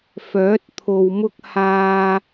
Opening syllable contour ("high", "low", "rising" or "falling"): rising